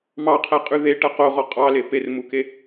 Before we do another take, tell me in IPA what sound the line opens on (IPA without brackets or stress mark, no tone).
m